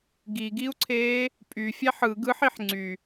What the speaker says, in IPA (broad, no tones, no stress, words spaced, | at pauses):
ɡiɡiu̯ǀʰeː | pʼyfʲæħ ɯɡ ɯħiħ ŋ͡ǀy